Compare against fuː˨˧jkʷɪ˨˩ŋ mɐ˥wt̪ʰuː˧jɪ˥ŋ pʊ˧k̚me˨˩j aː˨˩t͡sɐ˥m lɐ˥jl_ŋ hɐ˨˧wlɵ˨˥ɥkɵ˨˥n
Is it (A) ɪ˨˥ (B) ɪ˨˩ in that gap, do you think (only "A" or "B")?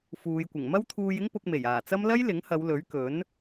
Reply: A